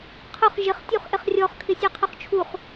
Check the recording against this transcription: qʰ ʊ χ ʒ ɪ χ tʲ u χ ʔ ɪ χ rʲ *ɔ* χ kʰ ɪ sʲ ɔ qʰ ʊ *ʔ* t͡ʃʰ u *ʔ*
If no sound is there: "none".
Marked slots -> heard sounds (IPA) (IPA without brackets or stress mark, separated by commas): ɔ, χ, χ